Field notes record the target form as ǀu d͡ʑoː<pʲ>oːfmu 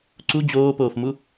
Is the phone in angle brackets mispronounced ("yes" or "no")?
yes